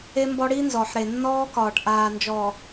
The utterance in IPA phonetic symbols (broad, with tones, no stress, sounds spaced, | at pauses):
e˦ m b ɔ˦ ɽ i˦ n z ɔ˨ ħ ɾ e˨ nː ɔː˦ k ɒː˨ ʈ ʔ aː˨ n d͡ʒ ɔː˨